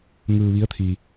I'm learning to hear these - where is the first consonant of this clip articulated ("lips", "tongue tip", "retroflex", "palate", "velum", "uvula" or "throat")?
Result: velum